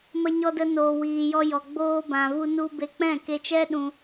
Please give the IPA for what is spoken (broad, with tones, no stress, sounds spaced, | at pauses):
m ə˧ ɲ ɔ˧ d ə˧ n oː˨ w iː˨ j ɔ˧ j ɔ˨ ɡ͡b oː˧ b ã˨ v u˧ n u˧ b e˧ k͡p ɛ̃˦˨ k e˧ t͡ʃ ɛ˦ ɗ ũ˧